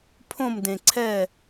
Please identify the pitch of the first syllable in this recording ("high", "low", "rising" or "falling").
falling